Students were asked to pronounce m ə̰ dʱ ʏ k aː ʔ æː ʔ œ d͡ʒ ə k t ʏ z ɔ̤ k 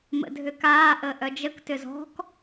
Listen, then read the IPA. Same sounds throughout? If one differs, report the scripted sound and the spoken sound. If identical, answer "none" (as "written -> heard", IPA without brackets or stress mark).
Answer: æː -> əː